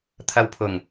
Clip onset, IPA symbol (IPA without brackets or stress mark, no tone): t̪ʰ